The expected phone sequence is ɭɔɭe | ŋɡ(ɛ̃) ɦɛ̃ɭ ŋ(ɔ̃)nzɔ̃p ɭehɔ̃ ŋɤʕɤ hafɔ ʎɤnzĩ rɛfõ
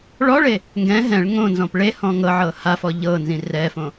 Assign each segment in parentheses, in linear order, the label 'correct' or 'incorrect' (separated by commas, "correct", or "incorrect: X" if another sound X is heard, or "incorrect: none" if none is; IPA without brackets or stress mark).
correct, incorrect: õ